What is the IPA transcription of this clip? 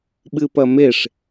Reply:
ɓ ɨ p ɐ m e ʂ

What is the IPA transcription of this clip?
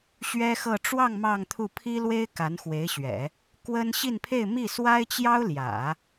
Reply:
ɕ ɥ ɛ˥ x ɤ˥˧ ʈ͡ʂ w ɑ˥˧ ŋ m ɑ˥˧ ŋ t̪ʰ u˥˩ pʰ i˥ l w e˥ ɪ̯ k a˧˥ n x w e˧˥ ɪ̯ ɕ ɥ ɛ̰˨˩˦ | k w ə˥ n ɕ i˥˧ n pʰ e˥˧ ɪ̯ m i˥˩ s w a˥ ɪ̯ t͡ɕ j ɑ˥ ʊ̯ l j ä̰˨˩˦

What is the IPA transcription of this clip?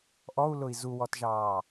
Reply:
ʔ ɔ u̯ l ʊ i̯ z u w ɔ t ʒ ɑː

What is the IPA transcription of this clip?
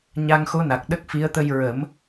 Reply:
ɲ a˧ ŋ x o˧˥ n a˨˩ k̚ ɗ ə˦˥ k̚ f i˧˥ ə̯ t̪ ə˧ j ɹ ə˨˩˦ m

